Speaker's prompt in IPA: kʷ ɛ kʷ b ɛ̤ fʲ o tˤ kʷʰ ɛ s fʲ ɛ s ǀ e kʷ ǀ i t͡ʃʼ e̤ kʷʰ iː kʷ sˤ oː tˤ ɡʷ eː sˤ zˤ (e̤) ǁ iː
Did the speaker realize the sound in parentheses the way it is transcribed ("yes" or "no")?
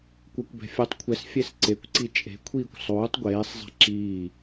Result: no